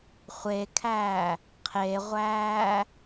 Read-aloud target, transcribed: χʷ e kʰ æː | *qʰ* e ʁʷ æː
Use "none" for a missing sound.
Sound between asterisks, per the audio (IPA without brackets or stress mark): qʰ